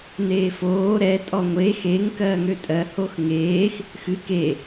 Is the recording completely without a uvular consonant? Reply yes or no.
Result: yes